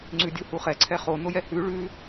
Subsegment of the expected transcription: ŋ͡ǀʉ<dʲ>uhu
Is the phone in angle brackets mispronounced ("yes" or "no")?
no